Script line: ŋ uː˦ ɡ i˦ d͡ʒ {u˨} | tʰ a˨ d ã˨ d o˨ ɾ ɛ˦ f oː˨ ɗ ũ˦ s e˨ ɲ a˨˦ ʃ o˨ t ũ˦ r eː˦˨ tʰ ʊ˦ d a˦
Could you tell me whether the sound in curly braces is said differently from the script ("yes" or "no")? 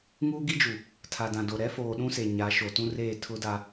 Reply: no